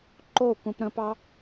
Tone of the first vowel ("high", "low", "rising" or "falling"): falling